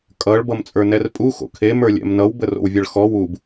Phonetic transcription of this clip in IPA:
kʼ ʌ ɭ b ʌ m t͡sʼ ə˞ n ɛ r pʼ u x o̰ kʰ e m ə˞ lʲ ɛ̰ m n ʌ w b ə r o̰ w vʲ ʌ ɭ x ɔ w u b

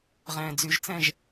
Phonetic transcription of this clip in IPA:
ʁ ɛ̃ː d͡z y ʒ t͡s ɛ̃ ʒ

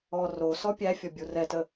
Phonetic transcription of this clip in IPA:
ɔ r o s ɔ pʲ æ fʲ ɔ bʲ u r ɛ t ə

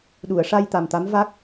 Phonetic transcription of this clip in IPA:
ɗ u˨˩˨ ə̯ ʂ a˧ j t̪ a˨˩ m t̪ a˧˥ m v a˦˥ k̚

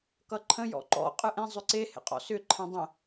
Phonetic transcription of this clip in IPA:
k ʌ ǃʰ ə̃ j ɔ̰ ǃ ɔ̰ qʼ ɯ ʔ ẽ zˤ ʏ ǀ e h ḛ qʼ ɔ̰ s ʏ ǃʰ ɛ̃ dˤ ə̃

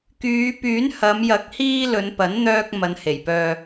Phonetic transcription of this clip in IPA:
k yː˨˧ p yː˨˥ n h ɐ˨˧ m j ɐ˨˥ k̚ h iː˧ l ɵ˨˧ n p ɐ˨˥ n n̪ œː˧ k̚ m ɐ˨˧ n h e˨˩ j p œː˨

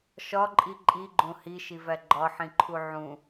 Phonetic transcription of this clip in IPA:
ʃ ɒ ǃʼ i ǃʼ i ɡ͡ǃ õ h i ʃ i v æ ɡ͡ǃ ɒ ħ ĩ ǃʰ u ʕ ũ

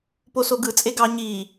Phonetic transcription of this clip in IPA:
p o s o ɡ ɯ t͡sʼ e ɡ ɑ ɲ iː

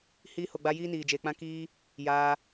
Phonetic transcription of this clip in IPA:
h iː˧ h o˨ ɡ͡b a˧ j iː˦ n iː˨ d͡ʒ eː˨ k͡p ã˦ k iː˦ | j aː˧

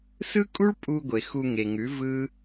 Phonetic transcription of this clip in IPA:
s ɯ˦ kʼ u˦ ɭ pʼ u˧ ɡʷ e˨ x u˧ ŋ e˨ ŋ ʉ˨˦ v ɯ˦

